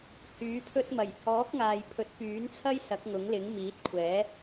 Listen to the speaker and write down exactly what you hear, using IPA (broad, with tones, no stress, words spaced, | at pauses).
hyː˨˥pʰɵ˥t̚ mɐ˨˩jhɔː˨˥k̚ŋaː˨j pʰɵ˨˥t̚pyː˨˥nt͡sʰɐ˥j sɐ˨˥k̚ŋʊ˨˥ŋlɪ˨˥ŋ miː˨˥t̚kʷʰɛː˨˥